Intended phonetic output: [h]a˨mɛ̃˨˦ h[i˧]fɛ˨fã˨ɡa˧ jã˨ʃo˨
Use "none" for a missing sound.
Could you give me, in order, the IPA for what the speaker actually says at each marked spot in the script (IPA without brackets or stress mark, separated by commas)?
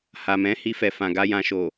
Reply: h, i˧